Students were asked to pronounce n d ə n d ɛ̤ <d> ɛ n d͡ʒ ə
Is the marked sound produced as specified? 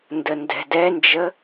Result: yes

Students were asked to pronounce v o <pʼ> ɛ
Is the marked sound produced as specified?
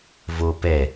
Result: no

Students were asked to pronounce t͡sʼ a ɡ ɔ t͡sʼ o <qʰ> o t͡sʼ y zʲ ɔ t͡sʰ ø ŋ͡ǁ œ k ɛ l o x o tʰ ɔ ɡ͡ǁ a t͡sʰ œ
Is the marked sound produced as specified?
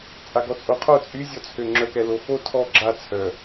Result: yes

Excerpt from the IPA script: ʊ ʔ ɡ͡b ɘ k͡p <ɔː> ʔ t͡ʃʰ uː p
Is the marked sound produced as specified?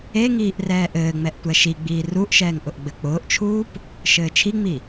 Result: no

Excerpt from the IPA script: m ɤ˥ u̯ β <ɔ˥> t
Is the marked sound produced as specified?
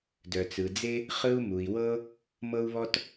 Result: yes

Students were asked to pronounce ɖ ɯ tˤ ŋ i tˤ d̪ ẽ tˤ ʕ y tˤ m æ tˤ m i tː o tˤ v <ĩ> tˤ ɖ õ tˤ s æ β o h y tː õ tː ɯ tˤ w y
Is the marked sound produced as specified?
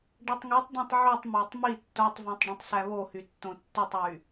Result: yes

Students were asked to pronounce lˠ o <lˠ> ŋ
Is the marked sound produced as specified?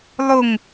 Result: no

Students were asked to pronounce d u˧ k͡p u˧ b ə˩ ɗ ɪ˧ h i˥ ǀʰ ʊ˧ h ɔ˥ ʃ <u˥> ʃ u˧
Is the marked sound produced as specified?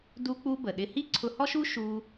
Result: yes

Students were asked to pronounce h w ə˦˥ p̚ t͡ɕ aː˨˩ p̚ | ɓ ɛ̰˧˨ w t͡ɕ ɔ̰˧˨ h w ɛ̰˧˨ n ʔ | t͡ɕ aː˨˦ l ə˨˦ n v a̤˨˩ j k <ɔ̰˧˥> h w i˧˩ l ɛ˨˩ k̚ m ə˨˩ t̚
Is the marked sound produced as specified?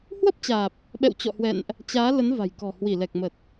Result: no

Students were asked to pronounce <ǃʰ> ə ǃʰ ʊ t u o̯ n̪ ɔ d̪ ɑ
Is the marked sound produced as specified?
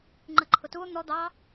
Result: no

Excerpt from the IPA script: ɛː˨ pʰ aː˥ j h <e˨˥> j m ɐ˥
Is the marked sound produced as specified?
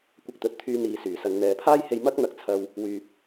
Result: no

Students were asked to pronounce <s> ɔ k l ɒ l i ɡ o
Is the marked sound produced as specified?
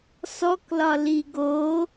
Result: yes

